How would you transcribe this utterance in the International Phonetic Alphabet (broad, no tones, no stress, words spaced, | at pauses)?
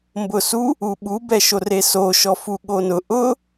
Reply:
mbʊsu | uɓu bɛʃoreso ʃɔfuɠonʊ ʔʊ